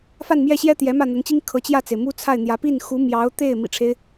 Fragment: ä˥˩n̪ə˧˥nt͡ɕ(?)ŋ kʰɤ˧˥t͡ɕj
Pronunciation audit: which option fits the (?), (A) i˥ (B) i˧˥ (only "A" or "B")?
A